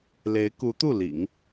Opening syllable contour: rising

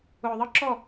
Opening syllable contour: low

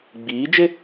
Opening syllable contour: rising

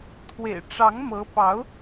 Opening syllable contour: low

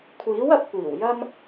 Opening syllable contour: rising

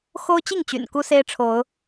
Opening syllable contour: high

